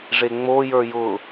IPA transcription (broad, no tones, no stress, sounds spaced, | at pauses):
ʐ e ŋ͡m o j ə˞ j ʊ